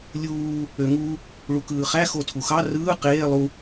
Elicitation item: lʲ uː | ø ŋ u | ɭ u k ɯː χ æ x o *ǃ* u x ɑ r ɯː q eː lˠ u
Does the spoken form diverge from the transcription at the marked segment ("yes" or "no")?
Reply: yes